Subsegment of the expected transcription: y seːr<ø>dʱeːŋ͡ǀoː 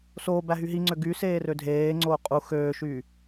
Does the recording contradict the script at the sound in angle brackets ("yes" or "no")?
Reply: no